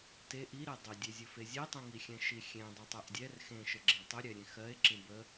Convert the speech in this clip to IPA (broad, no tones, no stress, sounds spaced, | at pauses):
t e ʔ i ɾ e dˤ ɵ dʲ e zʲ ɵ f e zʲ e tˤ ĩ ŋ i xʲ ɛ̃ ʃ i xʲ ẽ dˤ ɛ tˤ ɛ ʔ dʲ ɛ r x ẽ ʃ ə ɡ͡ǁ ẽ tˤ ɵ ɾʲ ɛ ɾʲ ẽ x ɜ e̯ ǁ ĩ b ə